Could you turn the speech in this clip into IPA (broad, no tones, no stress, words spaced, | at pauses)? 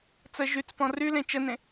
t͡sə ʒyt͡spɔ̃ rylẽ t͡ʃənẽ